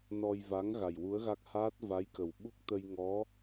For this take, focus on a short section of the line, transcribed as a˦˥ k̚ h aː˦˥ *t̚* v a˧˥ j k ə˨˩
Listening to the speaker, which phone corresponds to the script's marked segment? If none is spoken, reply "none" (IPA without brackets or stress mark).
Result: t̚